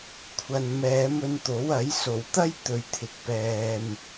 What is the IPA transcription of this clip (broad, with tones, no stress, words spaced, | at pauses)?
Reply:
kʷʰɐ˨n mɛː˨˧mɵ˧nt̪o˨˥wɐ˨˥j so˨˩wt̪ɐ˥j t̪ɵ˧ɥt̪ʰɪ˧k̚pɛː˧m